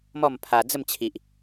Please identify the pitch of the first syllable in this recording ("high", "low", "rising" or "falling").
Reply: falling